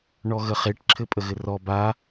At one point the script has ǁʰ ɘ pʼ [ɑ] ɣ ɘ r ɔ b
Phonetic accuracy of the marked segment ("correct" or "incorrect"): incorrect